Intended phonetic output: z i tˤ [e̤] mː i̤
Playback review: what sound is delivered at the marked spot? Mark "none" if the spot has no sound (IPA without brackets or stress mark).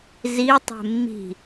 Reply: e̤